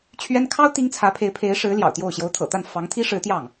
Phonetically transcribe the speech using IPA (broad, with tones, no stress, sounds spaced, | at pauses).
t͡ɕʰ ɥ ɛ˥ n kʰ ɑ˥ ʊ̯ t̪ i˥ ŋ t͡sʰ ä˧˥ pʰ e˧˥ ɪ̯ pʰ e˧˥ ɪ̯ ʂ ɻ̩˧˥ l j ɑ̰˨˩ ʊ̯ t̪ j o˥˩ ʊ̯ ɕ j o˧˥ ʊ̯ t̪ʰ ɤ̰˨˩ t̪ a˥˩ n f ɑ˧˥ ŋ t̪ʰ i˥ ʂ ɻ̩˧˥ t̪ j ɑ˥˩ ŋ